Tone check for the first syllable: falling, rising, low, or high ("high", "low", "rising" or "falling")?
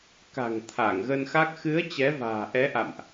low